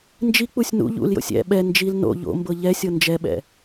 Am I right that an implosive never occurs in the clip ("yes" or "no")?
no